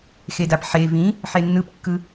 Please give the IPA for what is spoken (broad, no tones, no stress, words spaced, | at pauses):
xedapħe vĩ | ħenːɯpkːɯ